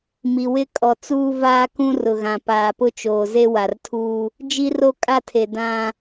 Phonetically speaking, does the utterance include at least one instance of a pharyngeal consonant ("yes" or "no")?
no